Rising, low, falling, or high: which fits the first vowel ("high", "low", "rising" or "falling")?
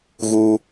high